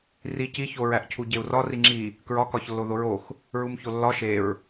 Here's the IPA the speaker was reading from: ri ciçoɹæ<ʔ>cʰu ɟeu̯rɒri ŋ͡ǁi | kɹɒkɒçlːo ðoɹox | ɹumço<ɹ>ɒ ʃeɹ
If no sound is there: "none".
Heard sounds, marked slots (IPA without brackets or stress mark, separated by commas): ʔ, lː